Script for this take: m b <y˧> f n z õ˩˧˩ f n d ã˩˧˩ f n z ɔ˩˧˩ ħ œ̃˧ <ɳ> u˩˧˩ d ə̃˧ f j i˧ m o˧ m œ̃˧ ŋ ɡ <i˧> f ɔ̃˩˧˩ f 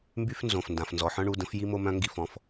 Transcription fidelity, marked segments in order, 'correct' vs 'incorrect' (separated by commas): correct, correct, correct